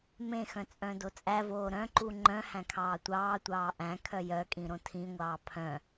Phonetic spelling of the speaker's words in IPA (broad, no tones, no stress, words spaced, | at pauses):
mẽxœ̃ t͡sʼœ̃dot͡sʼævoː ɾœ̃ǃu ŋ͡ǃœ̃hæ̃ kʰɑːtʷɑːtʷɑː ʔæ̃ kʰœjœkʼĩ ɾõtʰĩŋʷɑː pʰœ̃